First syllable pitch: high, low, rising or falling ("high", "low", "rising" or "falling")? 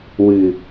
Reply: low